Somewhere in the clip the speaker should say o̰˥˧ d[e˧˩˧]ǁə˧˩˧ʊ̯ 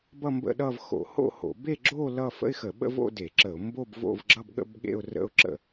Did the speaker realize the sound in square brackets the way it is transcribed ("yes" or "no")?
yes